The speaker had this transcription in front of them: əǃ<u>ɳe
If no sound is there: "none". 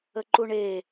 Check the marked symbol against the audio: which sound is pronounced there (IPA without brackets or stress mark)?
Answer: u